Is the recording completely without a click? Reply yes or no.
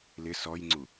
no